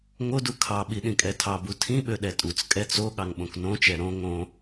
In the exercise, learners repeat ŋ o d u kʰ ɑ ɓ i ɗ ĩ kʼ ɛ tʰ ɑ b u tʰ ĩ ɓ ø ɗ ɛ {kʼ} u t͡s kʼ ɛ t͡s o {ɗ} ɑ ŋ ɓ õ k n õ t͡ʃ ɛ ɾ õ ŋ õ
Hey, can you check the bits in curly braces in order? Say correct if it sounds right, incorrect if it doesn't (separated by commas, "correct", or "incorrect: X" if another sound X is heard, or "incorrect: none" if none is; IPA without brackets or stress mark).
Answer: incorrect: tʼ, incorrect: ɠ